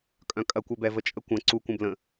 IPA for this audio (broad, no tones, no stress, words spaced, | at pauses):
kʼœ̃kʼɐkʷɛbɛ vət͡ʃʼəkʷɐ̃ ǀu kʷə̃blə̃